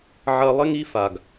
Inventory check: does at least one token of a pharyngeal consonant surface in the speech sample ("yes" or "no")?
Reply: yes